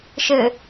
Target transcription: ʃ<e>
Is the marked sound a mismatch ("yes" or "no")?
yes